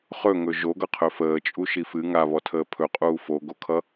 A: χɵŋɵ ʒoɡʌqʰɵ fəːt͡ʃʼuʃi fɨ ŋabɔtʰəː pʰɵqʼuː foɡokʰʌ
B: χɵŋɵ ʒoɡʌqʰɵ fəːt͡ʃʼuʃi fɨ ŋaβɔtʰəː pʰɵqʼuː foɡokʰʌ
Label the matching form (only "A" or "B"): B